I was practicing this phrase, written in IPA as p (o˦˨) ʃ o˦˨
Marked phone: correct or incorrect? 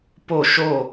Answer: correct